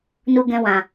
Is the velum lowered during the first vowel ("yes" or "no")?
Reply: no